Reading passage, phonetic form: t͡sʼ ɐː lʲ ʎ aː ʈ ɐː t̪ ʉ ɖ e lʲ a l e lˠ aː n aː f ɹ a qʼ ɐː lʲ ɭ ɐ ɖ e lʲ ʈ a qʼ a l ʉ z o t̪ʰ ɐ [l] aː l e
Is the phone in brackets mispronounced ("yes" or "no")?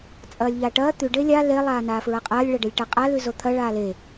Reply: yes